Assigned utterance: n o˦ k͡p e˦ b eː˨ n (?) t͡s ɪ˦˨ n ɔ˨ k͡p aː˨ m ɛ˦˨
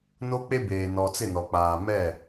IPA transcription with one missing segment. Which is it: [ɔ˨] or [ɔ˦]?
ɔ˨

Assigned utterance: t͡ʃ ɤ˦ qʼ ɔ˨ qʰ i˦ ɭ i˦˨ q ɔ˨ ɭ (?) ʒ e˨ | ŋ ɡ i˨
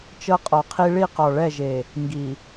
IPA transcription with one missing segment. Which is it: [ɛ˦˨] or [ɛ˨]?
ɛ˦˨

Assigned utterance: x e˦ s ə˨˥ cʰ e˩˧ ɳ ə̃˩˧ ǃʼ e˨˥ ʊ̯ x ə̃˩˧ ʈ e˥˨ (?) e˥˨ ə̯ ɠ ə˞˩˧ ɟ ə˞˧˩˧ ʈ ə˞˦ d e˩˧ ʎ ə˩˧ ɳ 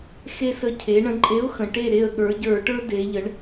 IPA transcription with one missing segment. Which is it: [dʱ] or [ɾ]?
ɾ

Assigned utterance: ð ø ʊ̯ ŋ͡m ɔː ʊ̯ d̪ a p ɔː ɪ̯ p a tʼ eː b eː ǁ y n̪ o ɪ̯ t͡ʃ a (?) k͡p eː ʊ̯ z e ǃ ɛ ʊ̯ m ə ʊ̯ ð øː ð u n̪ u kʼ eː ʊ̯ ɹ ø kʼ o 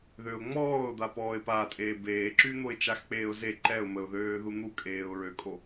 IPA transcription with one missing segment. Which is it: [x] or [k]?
x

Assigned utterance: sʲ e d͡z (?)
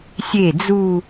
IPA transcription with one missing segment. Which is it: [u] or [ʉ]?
u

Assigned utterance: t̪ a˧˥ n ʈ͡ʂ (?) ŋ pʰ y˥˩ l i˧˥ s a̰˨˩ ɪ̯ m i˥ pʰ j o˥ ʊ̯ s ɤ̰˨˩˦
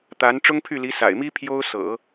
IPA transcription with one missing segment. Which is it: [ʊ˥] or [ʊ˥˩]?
ʊ˥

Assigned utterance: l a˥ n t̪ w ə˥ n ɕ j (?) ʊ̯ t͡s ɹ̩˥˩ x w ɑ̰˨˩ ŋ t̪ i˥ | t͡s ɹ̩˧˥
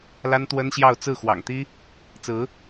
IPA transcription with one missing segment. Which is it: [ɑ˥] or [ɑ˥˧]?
ɑ˥˧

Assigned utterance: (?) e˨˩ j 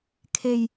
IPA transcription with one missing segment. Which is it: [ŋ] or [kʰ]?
kʰ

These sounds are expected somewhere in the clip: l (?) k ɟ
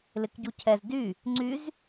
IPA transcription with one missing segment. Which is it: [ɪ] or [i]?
ɪ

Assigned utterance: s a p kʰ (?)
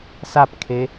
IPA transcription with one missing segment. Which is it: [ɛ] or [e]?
e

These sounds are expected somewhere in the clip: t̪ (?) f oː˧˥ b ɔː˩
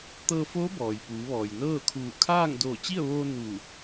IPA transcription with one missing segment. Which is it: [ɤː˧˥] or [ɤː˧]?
ɤː˧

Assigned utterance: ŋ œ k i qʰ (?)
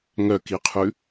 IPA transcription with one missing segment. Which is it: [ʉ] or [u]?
ʉ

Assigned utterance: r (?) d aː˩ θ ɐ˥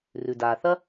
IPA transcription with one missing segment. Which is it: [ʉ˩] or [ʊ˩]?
ʉ˩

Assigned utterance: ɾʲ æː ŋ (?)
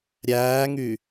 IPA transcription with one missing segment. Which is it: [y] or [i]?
y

